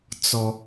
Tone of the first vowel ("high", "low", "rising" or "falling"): high